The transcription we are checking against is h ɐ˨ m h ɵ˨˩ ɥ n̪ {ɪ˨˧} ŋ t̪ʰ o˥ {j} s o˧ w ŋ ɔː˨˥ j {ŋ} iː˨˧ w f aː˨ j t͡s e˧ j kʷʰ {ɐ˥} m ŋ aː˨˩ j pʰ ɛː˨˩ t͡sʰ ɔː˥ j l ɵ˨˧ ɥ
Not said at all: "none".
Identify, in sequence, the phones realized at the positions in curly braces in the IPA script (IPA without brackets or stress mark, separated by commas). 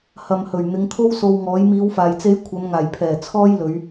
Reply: ɪ˨˧, w, m, ɐ˨˧